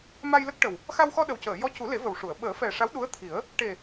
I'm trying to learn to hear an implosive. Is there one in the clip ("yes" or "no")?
yes